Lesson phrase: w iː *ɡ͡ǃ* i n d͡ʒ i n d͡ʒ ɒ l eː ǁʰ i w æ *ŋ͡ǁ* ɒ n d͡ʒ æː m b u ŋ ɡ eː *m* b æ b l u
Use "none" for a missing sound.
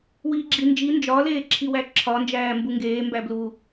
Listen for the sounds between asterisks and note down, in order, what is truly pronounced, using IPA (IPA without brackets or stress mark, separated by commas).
ɡ͡ǁ, ǁʰ, m